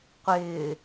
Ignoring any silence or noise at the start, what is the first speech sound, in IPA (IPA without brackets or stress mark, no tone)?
qʷ